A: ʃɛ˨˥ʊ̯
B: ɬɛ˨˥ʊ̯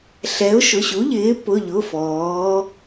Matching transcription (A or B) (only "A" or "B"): B